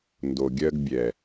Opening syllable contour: low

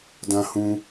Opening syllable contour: low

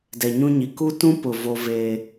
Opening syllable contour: low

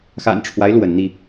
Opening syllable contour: low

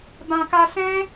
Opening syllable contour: low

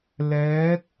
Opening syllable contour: rising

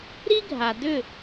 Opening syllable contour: high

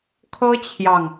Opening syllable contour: high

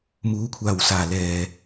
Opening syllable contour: rising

